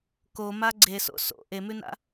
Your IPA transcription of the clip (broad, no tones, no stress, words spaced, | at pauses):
koma ɡ͡ǀeso̰ so̰ ʔemʉna̰